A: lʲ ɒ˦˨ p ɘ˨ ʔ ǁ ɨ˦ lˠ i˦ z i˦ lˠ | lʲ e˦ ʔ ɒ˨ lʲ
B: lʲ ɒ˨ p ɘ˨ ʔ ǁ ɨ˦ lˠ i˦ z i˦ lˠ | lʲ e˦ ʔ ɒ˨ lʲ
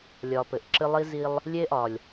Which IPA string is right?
B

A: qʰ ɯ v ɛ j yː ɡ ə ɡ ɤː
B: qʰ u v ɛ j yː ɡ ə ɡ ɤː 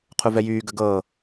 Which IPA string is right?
B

